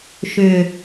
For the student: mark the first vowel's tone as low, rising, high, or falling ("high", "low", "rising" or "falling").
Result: low